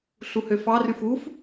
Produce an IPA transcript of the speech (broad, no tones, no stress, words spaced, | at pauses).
ɬuhøfɑ ryfuf